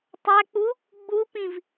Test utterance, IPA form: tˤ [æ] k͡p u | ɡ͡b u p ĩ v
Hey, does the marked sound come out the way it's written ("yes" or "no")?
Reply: yes